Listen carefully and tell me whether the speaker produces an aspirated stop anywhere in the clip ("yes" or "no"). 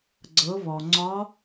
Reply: no